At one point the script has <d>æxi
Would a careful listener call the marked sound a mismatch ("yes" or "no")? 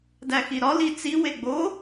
no